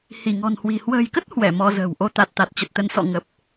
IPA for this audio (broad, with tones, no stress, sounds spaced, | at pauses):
h i˧˩ ŋ ɔ̤˨˩ n h w i̤˨˩ h w ə̤ː˨˩ j k ə˦˥ t̚ h w ɛ˧˩ m ɔ˧ z ə̤ː˨˩ w ʔ o˧ t̪ a˨˩ t̚ t̪ a˨˩ t̚ t͡ɕ ə˨˩ t̚ t̪ ə˨˦ n s ɔ̰˧˨ ŋ ə˨˩ p̚